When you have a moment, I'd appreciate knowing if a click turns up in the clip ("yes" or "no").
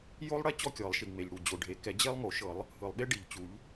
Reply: no